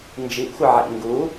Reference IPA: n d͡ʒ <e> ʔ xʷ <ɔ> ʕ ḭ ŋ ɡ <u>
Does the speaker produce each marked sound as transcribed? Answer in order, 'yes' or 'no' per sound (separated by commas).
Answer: no, no, yes